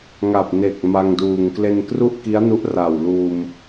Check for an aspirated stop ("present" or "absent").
absent